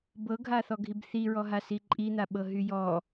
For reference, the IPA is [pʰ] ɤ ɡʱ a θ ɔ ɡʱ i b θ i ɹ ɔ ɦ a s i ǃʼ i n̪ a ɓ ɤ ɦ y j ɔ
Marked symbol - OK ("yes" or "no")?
no